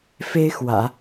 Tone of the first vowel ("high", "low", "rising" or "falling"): high